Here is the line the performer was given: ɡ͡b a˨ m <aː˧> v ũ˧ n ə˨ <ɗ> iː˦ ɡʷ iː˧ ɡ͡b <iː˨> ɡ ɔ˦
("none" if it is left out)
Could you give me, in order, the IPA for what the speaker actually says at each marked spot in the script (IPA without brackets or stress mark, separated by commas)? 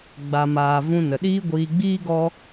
aː˨, ɗ, iː˦